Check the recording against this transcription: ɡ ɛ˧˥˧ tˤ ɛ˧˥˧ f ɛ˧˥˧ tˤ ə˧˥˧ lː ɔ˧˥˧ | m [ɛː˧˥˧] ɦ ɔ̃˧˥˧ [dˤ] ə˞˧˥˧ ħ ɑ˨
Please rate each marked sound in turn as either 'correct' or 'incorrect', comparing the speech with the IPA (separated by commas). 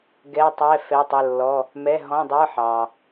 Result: incorrect, correct